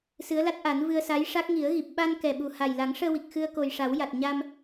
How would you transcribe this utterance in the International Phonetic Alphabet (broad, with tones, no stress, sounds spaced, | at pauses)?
s ɨ˧˥ ə̯ l a˦˥ t̚ ʔ a˨˩˦ n v ɨ˧ ə̯ s a˧˥ j ʂ a˦˥ k̚ ŋ i˨˩˦ ə̯ ɣ i˨˩ p̚ ɓ a˧ n k ɛ˨˩ ɓ u˨˩ h a˨˩ j l a˨˩˦ ŋ ʂ əː˧ w i˨˩ k̚ x ɨ˧ ə̯ k o˨˩ j ʂ a˨˩˦ w j a˨˩ t̚ ɲ a˧ m